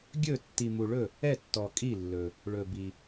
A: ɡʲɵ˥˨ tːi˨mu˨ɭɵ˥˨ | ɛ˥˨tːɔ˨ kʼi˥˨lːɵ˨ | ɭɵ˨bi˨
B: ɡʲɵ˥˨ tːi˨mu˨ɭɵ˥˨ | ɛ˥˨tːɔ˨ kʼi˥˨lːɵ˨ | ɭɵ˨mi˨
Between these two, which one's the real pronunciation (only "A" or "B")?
A